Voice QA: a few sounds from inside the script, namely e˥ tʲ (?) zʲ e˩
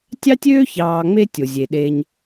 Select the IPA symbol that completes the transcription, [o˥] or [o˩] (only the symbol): o˩